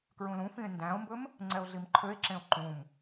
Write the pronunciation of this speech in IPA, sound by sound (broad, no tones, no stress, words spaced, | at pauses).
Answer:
kɹũlũfĩe̯ ndæ̃o̯mbɵm | ŋ͡ǀɛo̯ɮimǃʰøe̯ǁẽo̯ ǃũm